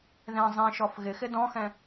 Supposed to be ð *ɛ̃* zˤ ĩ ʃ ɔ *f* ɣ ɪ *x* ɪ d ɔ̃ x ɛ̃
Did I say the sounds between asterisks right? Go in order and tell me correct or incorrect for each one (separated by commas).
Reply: correct, correct, correct